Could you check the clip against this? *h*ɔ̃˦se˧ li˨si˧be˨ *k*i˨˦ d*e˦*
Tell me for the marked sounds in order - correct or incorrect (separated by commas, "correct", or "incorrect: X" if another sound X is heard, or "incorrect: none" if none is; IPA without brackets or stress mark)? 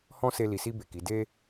correct, correct, correct